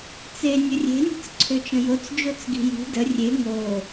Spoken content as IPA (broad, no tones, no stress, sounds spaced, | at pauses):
t͡s e nʲ ə rʲ e̤ nʲ ə̤ t͡s ǀʰ ø t͡ʃ ə̃ j o t͡s d͡ʒ o t͡s ɡ i̤ j i̤ d ə rʲ e ŋ o